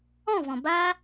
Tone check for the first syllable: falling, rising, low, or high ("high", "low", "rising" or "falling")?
falling